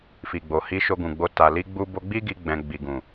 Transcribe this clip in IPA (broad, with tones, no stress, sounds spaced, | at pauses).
f i˨ ɡ͡b o˨ h i˧ ʃ o˧ ɡ ũ˨ ɡ͡b o˧ t a˨ l i˧ ɡ͡b u˧ b o˧ ɡ͡b i˦ ɡ i˧ ɡ͡b ɛ̃˧ ɡ͡b i˨ ɡ ũ˨